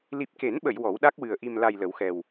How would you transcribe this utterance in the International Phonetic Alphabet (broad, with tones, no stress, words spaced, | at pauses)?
li˨˩p̚ke˨˩˦nɓə˨˩˨j wɔ˨˩˦wɗa˦˥k̚wɨ˨˩ə̯ ʔi˨˩mla˨˩j lə˨˩˦wxɛ˨˩w